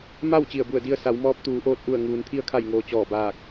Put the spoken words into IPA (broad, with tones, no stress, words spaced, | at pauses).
ma˥˨w t͡ɕi˧˩ə̯bu˧˩ə̯di˧ə̯ sa˩˧wmɔː˧˥p̚ t̪uː˩˧ʔoː˧t̚ ʔu˧˩ə̯ ŋuː˩nt̪ʰi˧ə̯kʰa˧˩jŋoː˩ t͡ɕɔː˧˩baː˧˩k̚